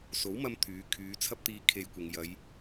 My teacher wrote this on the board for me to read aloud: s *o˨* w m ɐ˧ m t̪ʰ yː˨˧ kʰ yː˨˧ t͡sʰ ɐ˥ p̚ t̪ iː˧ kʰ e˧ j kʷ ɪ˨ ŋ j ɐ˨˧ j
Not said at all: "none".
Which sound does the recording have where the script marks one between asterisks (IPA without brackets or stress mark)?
o˨˥